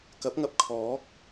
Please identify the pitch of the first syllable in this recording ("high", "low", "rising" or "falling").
rising